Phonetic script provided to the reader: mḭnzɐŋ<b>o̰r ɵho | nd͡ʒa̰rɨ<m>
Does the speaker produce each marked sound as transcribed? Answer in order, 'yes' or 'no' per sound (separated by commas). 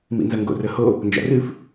no, no